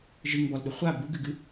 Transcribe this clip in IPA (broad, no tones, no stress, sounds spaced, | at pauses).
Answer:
ʒ ɨ ŋ b ɔ l ɗ ʊ χʷ a b u ɡ ɨ ɡ ɨ